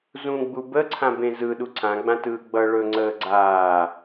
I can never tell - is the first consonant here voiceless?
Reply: no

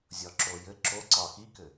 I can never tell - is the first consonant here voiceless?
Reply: no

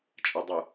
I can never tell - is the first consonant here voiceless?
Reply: yes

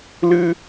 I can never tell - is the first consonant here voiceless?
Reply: no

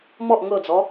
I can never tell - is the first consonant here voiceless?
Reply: no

